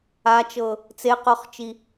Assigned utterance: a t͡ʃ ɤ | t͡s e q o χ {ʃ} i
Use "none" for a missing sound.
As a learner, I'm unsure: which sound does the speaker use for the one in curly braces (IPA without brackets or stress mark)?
t͡ʃ